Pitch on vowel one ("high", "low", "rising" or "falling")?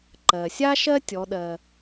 low